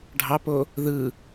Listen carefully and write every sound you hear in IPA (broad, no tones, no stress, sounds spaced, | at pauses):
ɖʱ ɑ p o | ð ɯ